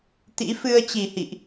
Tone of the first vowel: rising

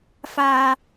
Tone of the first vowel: low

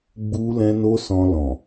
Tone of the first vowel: high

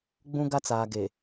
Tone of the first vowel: high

